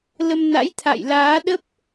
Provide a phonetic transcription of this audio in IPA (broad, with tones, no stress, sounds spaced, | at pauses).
l ə˧ m n a̰˧˥ j t̪ʰ a̰˧˨ j l aː˨˦ ɗ ə˦˥ p̚